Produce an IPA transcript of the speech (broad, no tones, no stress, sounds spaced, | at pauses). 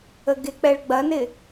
ə ɡ ɪ k͡p ɛ ɭ ɡ͡b ɐ n ɪ